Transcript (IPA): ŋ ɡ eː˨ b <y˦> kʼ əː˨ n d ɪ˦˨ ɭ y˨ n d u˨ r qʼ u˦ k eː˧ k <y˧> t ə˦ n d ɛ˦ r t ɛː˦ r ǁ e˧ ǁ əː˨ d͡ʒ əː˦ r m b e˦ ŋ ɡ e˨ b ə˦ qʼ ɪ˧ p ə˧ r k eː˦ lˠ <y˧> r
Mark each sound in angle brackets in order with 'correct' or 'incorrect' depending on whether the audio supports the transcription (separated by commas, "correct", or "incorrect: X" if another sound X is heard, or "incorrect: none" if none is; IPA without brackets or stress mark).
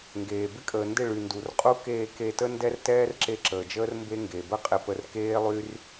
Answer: incorrect: ɪ˦, incorrect: e˧, incorrect: y˦